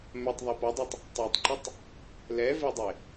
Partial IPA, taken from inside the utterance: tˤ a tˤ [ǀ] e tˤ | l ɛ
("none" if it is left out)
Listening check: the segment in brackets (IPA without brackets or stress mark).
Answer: ǃ